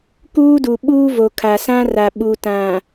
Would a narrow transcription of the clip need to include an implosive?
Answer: yes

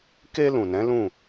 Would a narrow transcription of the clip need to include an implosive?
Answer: no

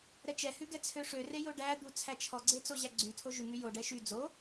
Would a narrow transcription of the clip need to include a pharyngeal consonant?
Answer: no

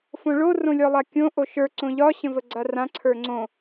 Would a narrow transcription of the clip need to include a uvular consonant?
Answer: no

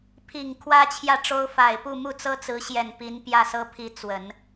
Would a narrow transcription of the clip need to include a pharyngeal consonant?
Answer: no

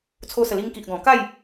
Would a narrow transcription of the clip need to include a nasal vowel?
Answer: yes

